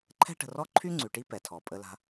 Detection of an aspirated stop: present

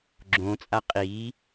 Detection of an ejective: present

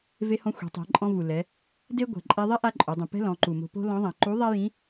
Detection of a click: present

